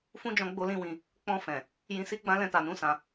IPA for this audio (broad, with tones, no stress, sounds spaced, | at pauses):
f ũ˦ d͡ʒ ɔ̃˧ ɡ͡b o˦ l ĩ˦ w ĩ˧ | k͡p ɔ̃˧ f ɛ̃˨ | j ĩ˧ s i˦ ɡ͡b ã˦ l ɛ̃˧ t a˨ n ũ˨˦ s ã˧